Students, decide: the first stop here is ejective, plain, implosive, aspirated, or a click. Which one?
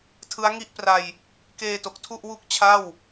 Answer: aspirated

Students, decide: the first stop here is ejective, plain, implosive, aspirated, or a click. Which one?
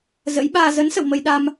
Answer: implosive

